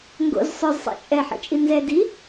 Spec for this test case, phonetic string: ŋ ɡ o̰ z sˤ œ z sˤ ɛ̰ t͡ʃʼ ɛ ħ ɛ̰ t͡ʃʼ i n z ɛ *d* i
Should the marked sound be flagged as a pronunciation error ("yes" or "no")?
no